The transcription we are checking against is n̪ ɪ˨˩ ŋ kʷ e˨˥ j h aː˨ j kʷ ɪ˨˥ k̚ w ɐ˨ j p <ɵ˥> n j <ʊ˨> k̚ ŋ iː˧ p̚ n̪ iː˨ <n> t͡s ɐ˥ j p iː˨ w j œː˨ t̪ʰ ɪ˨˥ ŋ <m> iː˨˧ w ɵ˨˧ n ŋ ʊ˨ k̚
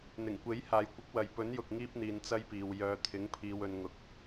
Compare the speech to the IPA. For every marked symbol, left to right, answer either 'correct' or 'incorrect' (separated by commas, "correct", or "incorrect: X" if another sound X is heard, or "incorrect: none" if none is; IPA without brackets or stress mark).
incorrect: ɵ˨˥, correct, correct, incorrect: pʰ